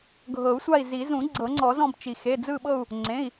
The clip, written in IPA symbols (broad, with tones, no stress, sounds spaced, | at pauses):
ɡʱ ɤ˨˩˦ u̯ sʷ a˦˨ i̯ z i˨˩˦ z ũ˨˩˦ ɡ͡ǀ ɤ˨˩˦ ŋ͡ǀ ɔ˨˩˦ z ɔ̃˦˨ b t͡ʃ i˩ x e˩˧˩ d͡z ɯ˦˨ ɓ ɤ˦˨ u̯ | ŋ͡ǀ ẽ˩˧˩ i̯